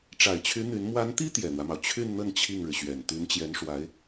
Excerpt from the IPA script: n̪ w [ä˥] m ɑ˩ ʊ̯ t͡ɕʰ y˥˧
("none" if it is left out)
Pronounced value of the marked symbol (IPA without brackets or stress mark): ä˦